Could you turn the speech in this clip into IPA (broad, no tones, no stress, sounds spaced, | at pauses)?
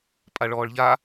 pʼ a ɭ ɔː ɭ ʎ a